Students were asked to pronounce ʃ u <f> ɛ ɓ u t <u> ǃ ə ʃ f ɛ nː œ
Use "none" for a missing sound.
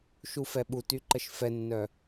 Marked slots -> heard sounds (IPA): f, y

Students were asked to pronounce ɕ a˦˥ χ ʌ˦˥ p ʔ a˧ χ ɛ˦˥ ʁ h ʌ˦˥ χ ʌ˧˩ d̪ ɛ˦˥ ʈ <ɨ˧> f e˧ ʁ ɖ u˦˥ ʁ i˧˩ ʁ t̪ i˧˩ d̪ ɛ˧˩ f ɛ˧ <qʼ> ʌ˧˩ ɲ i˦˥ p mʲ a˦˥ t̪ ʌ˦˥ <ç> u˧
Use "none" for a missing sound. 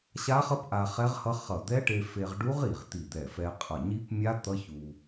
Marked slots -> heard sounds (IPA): e˧, qʼ, ç

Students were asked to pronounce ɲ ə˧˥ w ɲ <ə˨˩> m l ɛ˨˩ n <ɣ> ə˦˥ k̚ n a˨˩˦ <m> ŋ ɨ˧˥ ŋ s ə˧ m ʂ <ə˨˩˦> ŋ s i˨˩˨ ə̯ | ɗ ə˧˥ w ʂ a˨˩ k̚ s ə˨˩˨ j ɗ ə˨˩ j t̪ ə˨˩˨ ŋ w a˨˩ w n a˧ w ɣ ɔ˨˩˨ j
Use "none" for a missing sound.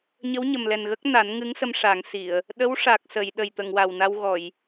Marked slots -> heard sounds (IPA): ə˨˩, ɣ, n, a˨˩˦

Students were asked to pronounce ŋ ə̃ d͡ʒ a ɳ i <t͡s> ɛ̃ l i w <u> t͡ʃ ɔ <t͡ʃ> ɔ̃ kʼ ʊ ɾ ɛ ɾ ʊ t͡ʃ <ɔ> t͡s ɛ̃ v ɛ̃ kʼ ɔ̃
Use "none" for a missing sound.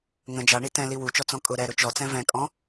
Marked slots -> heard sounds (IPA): t, u, t͡s, ɔ

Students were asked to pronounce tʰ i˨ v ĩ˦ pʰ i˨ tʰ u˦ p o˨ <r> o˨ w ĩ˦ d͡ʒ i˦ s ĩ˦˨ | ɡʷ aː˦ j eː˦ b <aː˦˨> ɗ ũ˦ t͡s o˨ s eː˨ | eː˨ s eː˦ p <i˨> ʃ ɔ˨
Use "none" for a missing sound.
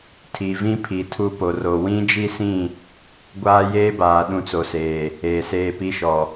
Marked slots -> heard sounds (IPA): r, aː˨, i˦

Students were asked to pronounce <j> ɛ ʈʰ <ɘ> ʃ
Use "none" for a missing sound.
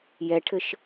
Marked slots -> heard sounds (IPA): j, ɘ

